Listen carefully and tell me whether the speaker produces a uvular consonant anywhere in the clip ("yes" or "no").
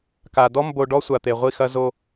yes